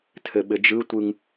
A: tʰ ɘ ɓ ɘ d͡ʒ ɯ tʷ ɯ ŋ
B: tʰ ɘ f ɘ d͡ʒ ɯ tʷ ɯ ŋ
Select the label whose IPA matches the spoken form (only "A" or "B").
A